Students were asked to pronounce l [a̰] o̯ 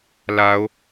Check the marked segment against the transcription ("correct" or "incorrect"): incorrect